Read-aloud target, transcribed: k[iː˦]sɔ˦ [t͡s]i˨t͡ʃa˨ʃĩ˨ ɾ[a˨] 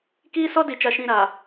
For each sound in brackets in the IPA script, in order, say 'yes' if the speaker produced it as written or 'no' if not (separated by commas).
yes, no, yes